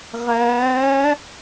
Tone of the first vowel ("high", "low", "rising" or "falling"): rising